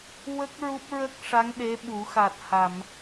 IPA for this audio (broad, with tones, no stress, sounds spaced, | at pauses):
w ə˦˥ k̚ ɹ u˦˥ p̚ ɹ ə˦˥ k̚ ʂ a˧˥ ŋ ɗ e˧˥ ɓ u˨˩˦ x a˨˩ t̚ h a˨˩˨ m